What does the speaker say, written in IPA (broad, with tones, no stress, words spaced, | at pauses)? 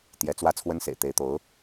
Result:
t̪jɛ˧˥t͡swä˥ t͡sʰwə˥nsḛ˨˩ɪ̯t̪e˧˥ɪ̯ t̪o˧˥ʊ̯